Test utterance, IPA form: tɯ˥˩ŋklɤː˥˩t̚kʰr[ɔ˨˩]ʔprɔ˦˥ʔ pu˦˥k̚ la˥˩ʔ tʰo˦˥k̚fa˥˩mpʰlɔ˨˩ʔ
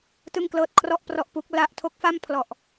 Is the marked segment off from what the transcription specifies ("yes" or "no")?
yes